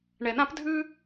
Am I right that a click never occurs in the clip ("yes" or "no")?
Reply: yes